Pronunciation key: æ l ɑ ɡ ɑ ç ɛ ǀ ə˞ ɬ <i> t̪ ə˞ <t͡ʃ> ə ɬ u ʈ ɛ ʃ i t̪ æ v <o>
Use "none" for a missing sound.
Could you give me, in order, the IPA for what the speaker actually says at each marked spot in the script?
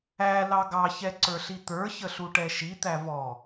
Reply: i, ç, ɔ

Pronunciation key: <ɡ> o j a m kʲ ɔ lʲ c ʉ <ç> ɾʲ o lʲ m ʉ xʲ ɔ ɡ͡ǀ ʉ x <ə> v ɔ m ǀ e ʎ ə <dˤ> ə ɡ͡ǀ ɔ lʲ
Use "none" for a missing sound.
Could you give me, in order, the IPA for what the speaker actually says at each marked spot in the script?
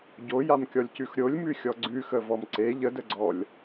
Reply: ɟ, x, ə, d

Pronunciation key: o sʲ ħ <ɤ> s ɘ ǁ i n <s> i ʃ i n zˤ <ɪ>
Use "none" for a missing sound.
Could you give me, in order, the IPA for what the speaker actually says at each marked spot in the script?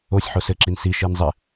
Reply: o, s, ɪ

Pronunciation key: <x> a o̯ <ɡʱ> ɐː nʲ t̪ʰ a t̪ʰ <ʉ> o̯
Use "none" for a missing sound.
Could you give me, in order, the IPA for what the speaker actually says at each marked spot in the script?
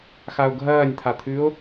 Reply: x, ɡʱ, ʉ

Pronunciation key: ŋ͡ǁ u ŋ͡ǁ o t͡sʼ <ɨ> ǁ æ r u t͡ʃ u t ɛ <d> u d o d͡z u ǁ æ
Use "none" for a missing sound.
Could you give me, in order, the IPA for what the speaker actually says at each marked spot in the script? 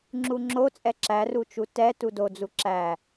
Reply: ɛ, t

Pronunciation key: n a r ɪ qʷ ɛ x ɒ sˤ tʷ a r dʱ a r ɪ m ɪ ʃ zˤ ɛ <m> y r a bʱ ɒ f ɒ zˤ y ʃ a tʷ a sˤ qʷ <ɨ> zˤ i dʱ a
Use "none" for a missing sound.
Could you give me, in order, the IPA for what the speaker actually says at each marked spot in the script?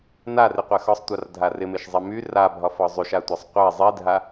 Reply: m, ɛ

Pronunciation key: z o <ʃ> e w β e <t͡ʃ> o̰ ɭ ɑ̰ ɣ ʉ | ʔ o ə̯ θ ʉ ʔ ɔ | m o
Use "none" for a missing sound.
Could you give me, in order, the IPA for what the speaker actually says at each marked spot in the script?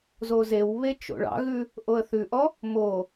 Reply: z, t͡ʃ

